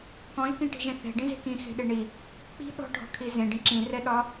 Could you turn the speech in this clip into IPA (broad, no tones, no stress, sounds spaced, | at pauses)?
k ɔ̃ ʒ k ĩ ʈ i̤ ʒ ẽ θ ɛ̤ ɖ ĩ z e̤ k ĩ x e̤ ɗ e ɳ i | k͡p i̤ ɗ ɔ̤ ɖʱ ɔ̤ kʰ i z ẽ ɖ ĩ ǁ ĩ r ɛ ɗ ɒ